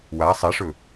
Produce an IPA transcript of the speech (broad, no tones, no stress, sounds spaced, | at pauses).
w a sˤ ɛ ʂ ɵ